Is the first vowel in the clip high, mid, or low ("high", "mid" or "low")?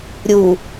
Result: high